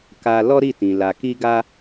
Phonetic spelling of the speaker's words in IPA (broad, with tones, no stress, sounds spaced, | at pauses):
k a˧ l ɔ˦ ɾ i˦˨ t ĩ˨ l a˨ k i˧ ɡ a˧